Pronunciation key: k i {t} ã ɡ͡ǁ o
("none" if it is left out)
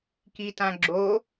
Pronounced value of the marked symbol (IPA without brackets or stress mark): t